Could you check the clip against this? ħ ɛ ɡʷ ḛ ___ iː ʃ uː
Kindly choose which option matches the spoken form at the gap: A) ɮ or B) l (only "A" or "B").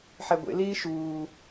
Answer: B